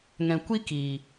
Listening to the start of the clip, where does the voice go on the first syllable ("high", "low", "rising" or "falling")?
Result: low